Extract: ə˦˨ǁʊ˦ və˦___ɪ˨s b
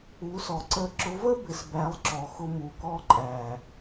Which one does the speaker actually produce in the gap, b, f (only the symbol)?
b